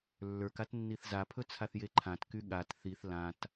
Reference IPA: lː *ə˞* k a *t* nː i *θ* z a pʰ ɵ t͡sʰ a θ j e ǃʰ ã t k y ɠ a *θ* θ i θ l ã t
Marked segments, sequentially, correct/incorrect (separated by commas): correct, correct, correct, incorrect